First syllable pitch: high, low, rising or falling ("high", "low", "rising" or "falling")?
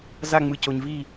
falling